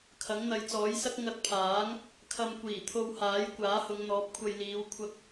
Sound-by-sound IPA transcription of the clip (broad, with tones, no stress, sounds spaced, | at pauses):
kʰ ɐ˨˥ ŋ n̪ ɐ˨˧ j t͡s ɔː˨˥ j s ɐ˥ k̚ ŋ ɐ˧ t̚ pʰ aː˨˥ ŋ | kʰ ɐ˧ m kʷ iː˨˩ t̪ʰ o˧ w h aː˨˥ j kʷ aː˨˥ h ʊ˨˧ ŋ n̪ ɔː˨˥ p̚ kʷʰ ɐ˧ j l iː˨˧ w kʷʰ ɐ˧ k̚